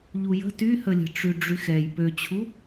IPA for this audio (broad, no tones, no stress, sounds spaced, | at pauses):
ʎ u j ə̤ t y h ə lʲ ə̤ ʈ͡ʂ y ɖ͡ʐ y x ɛ j p ø t͡ɕʰ u